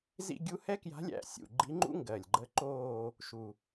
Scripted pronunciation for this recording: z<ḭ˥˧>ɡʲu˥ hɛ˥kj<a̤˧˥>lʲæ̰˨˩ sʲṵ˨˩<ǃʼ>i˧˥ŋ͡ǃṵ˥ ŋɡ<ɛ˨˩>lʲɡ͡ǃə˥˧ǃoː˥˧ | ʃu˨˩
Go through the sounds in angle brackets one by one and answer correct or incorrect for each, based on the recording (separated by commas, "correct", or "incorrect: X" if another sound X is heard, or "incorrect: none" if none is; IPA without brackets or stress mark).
correct, correct, incorrect: ɡ͡ǃ, incorrect: ɜ˨˩